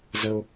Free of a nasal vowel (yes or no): yes